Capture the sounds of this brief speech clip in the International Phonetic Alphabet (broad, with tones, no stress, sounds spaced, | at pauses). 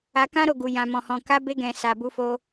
a˧ k ã˦ ɾ o˦˨ ɡ u˨ j ã˨ m ɔ̃˨ h ɔ̃˨ k a˧ b e˧ ɡ ɛ̃˨ s a˨ b u˧ f o˧